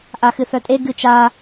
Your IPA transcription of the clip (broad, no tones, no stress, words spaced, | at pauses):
ʔaxɨθœtʼe ɡɨt͡ʃa